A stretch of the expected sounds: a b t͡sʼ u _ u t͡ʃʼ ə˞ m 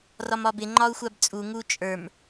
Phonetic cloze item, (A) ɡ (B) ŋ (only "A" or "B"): B